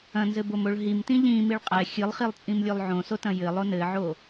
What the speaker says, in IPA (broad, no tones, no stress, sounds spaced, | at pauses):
ɐ̃ n z ɘ b o m o ɭ ɦ i m t ĩ ʎ ĩ m i ɭ qʼ ɛ xʲ ɨ lˠ χ i lˠ t͡sʼ ĩ m lʲ o lˠ ʕ õ s o t ɐ̃ j ɘ lˠ o n ɘ ʕ o